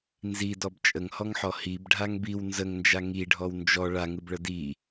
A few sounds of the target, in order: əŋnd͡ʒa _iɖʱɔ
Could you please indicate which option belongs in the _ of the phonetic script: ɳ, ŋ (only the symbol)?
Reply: ŋ